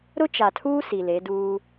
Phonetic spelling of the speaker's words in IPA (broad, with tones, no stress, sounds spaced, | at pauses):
ɾ ʊ˦ t͡ʃ a˨ tʰ uː˦ s i˨ l e˨˦ d uː˦